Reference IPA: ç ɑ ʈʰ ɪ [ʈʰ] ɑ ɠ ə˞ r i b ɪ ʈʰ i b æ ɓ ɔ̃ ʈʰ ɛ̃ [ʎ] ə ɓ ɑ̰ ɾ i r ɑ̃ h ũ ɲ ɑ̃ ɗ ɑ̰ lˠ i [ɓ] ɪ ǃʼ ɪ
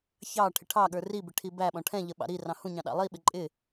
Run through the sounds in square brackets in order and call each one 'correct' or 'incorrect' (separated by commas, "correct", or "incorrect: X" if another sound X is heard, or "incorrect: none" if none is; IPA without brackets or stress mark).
correct, correct, correct